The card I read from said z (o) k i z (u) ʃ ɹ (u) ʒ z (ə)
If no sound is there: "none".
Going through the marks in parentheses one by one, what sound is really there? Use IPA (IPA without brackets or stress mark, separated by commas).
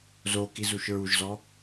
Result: o, u, u, ɔ